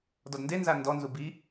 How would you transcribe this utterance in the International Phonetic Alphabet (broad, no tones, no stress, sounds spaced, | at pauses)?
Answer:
d ɔ d n d e n z a n d ɔ n z u b i